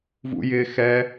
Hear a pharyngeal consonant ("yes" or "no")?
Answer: no